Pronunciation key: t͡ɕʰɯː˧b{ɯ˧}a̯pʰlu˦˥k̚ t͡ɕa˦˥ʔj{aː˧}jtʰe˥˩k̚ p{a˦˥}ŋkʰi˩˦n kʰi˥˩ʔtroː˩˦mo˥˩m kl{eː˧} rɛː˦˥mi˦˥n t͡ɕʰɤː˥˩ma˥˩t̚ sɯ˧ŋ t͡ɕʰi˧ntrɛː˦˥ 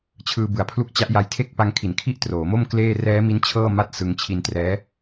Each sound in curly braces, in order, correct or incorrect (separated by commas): incorrect, incorrect, incorrect, incorrect